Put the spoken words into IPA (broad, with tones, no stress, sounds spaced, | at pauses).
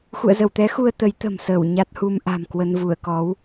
x ṵ˧˨ ə̯ z ə˧˩ w t̪ ɛ˨˦ x u˧ ə̯ t̪ ə˨˦ j t̪ ə̤˨˩ m s əː˧˩ w ɲ a˦˥ t̚ h u˧ m ʔ a̤˨˩ m k w ə˧ n v u˧˩ ə̯ k ɔ˨˦ w